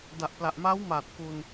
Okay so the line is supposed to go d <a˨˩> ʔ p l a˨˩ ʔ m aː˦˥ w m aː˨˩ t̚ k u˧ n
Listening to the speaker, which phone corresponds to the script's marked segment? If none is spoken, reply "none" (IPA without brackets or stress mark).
a˨˩